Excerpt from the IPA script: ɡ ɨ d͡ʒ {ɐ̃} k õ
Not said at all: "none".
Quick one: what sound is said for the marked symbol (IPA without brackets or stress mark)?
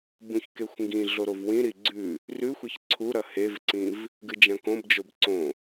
ɐ̃